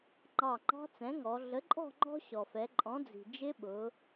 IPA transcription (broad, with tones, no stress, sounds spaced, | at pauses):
ŋ͡ǃ ɑ˧˩ ŋ͡ǃ ɑ̤˦˥ t͡s ɛ̃˩˥ ŋ ɔ˩˧ ɮ ə˩˥ ǃʼ ɔ̤˥˨ ŋ͡ǃ ɔ̤˦˥ ɕ ɔ˩ f ɛ˩˧ ǃʼ ɔ̃˩˥ d͡z i̤˩ d͡ʒ ɪ˦˥ ɓ ʊ˩˧